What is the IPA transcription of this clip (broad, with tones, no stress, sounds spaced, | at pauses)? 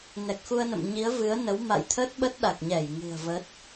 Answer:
n ɛ˨˩ k̚ x u˧ ə̯ n ə̰˧˨ m ɲ i˨˦ ə̯ v ɨ˨˦ ə̯ n ə˨˦ w m a̰˧˨ j t̪ʰ ə˦˥ t̚ ɓ ə˦˥ t̚ ɗ a˨˩ k̚ ɲ ɛ˧˩ j ŋ ɨ̤˨˩ ə̯ v ə˦˥ t̚